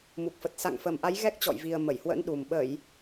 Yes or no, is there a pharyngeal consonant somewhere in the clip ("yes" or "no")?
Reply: no